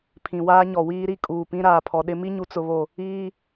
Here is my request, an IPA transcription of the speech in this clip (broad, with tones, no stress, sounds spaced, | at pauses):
pʰ ĩ˨ w aː˦ ɲ ɔ˨ w iː˦ ɾ i˦ kʼ uː˨ p ĩ˦ ɾ aː˨ pʰ ɔ˨ ɗ ɪ˦ m i˦ ɲ u˨ t͡s ʊ˨ β o˨ | iː˦